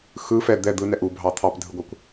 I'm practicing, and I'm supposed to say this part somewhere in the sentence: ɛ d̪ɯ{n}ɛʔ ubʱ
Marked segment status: correct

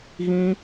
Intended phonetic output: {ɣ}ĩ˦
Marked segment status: correct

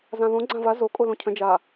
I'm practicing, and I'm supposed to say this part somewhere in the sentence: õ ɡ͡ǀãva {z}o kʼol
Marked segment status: correct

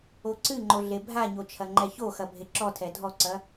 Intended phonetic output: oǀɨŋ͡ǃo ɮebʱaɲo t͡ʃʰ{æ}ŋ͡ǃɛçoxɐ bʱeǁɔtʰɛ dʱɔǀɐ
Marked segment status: incorrect: ɐ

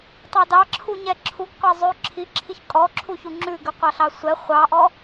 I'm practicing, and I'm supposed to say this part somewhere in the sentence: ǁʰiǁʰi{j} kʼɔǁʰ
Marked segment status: incorrect: ç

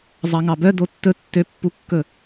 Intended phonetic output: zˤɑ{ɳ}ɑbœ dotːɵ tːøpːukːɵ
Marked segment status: incorrect: ŋ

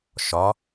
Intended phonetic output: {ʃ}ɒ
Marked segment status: correct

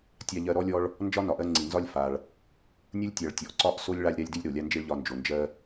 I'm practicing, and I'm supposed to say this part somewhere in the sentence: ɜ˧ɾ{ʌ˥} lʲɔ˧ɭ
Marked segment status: incorrect: ɔ˥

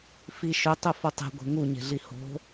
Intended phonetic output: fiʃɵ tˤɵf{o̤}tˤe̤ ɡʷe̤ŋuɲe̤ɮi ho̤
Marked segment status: incorrect: o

